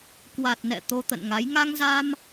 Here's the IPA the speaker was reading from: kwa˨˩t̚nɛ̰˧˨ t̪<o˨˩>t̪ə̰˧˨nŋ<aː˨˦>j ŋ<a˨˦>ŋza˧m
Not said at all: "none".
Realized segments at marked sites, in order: o˧, a˨˦, a˧

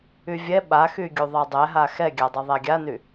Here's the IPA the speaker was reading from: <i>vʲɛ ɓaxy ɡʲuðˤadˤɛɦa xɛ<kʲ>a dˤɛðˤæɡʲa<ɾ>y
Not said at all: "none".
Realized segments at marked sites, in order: y, ɡʲ, n

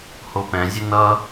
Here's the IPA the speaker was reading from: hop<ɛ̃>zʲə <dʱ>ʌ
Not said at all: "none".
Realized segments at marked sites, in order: ɛ̃, n

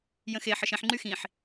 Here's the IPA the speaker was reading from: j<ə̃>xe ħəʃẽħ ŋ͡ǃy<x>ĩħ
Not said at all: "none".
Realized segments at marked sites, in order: ə̃, x

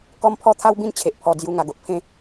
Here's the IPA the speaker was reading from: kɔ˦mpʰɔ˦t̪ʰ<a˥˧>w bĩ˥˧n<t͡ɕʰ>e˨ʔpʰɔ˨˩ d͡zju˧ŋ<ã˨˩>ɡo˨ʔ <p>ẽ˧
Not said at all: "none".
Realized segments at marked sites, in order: a˦, t͡ɕʰ, a˨˩, pʰ

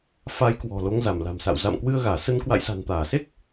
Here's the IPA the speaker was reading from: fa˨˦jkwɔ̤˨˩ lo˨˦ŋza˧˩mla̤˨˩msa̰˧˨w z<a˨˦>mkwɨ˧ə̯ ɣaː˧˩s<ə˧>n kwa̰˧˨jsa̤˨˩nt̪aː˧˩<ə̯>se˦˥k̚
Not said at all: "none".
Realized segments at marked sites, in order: a̰˧˨, ə˧, none

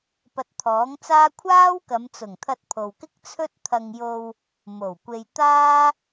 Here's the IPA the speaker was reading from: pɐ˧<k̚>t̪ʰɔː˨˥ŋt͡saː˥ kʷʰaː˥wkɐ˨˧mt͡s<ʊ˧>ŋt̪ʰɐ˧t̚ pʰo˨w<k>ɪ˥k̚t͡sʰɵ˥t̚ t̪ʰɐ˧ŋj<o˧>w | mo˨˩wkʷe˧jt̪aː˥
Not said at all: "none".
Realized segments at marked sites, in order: t̚, ʊ˨˩, k, o˧

